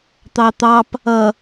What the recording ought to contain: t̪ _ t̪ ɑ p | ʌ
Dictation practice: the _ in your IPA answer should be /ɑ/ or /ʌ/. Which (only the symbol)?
ɑ